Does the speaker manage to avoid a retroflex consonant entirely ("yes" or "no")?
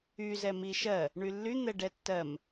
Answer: no